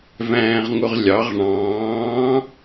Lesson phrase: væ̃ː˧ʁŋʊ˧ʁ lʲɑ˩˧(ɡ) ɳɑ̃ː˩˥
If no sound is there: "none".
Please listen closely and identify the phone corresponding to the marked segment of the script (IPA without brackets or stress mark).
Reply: ʁ